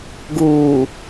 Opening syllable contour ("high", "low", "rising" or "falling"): low